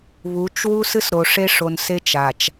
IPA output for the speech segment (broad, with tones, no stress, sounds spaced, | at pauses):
β u˨˦ t͡ʃ w u˦ s ɨ˦ s ɾ o˨ ʂ e˦ ʂ o˨ n s e˦ t͡ʃ a˨ t͡ʃ